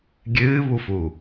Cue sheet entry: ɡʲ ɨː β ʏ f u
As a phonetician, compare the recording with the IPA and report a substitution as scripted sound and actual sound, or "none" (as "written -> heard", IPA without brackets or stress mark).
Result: ʏ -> u